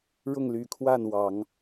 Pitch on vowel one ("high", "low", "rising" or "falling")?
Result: falling